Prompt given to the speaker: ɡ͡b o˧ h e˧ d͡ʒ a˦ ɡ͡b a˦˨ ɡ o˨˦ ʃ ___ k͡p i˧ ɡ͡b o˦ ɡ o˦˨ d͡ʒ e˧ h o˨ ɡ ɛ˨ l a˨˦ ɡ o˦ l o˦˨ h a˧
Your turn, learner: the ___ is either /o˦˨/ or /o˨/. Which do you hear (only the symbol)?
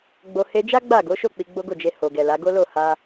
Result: o˦˨